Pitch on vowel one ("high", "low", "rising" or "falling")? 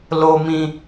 low